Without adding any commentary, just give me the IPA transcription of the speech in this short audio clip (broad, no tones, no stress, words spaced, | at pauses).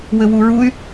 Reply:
wɘwuɹuy̯